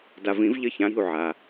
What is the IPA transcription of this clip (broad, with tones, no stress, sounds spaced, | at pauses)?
d a˨ v ĩ˨˩˦ v ʎ ə˦˨ ç ã˨˦ ɾ i̤˦˨ u̯ ʕ a˨